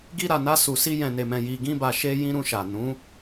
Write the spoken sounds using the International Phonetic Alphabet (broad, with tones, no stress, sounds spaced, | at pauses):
ɡ i˧ ɾ a˨ n a˧ s u˨ s i˧ j ɛ̃˨ n e˨ m ɛ̃˨ j i˨ ɡ ĩ˧ b a˨ ʃ e˧ j ĩ˦ ɾ ũ˧ ʃ a˨ n ũ˨˦